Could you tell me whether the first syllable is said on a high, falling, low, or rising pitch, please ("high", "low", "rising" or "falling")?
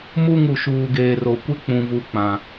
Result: falling